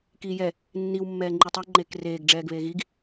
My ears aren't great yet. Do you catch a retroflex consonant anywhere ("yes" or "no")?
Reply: yes